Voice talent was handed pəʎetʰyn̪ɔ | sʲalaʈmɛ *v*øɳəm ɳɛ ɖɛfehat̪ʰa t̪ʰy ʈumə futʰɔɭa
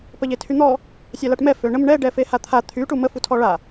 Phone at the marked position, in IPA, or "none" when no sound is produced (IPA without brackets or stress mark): f